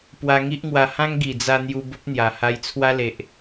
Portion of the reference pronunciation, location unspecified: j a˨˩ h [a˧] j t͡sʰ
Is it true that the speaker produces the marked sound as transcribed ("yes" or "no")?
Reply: yes